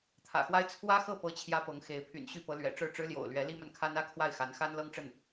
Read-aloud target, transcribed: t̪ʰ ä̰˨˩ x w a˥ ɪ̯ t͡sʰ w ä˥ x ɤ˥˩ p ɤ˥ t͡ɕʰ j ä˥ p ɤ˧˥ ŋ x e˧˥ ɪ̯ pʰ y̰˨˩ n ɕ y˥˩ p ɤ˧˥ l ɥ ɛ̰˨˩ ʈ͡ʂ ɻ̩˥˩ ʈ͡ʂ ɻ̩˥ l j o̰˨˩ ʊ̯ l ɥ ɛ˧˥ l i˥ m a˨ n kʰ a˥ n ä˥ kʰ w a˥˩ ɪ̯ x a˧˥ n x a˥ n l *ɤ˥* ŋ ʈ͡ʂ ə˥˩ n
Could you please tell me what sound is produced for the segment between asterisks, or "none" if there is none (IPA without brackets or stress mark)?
ɤ˥